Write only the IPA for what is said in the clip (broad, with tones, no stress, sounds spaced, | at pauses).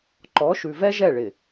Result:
ǃ ɔ˨˦ ʃ ʉ˨ v ɛ˦ ʒ ɛ˦˨ ɭ ɪ˨